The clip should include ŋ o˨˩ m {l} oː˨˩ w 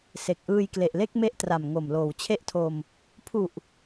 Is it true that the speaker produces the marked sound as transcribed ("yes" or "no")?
yes